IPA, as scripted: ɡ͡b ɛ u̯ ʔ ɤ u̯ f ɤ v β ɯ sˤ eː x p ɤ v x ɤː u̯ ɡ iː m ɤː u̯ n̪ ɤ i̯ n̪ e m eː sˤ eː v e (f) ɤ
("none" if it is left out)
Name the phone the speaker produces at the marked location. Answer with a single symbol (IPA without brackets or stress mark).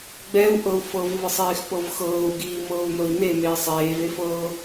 f